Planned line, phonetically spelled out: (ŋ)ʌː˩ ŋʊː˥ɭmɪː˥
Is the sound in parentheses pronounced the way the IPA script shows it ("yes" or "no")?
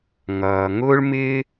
yes